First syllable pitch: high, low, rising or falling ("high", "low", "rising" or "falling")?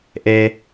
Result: low